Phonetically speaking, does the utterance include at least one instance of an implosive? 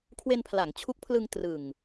no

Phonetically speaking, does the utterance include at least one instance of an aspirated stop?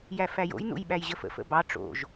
no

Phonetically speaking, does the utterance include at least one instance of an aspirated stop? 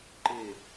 no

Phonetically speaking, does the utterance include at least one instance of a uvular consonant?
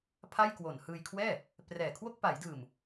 no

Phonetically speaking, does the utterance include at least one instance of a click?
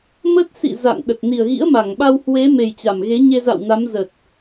no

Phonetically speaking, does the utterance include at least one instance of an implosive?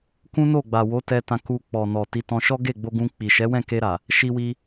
no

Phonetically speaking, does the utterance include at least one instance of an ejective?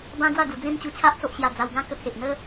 no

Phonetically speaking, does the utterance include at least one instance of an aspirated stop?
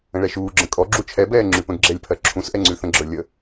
yes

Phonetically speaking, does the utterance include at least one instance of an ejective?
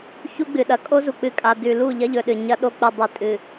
yes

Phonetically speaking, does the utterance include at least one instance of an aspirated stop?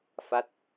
no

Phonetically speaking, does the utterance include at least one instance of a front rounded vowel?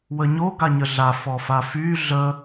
yes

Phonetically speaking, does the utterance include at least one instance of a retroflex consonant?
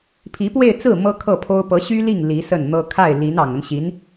no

